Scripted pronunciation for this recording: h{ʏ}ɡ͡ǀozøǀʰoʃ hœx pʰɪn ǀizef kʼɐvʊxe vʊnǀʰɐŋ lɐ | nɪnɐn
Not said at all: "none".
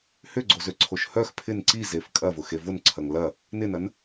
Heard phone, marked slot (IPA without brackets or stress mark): ʏ